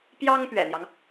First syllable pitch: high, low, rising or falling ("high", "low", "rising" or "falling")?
high